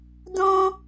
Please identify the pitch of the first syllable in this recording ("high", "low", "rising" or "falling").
high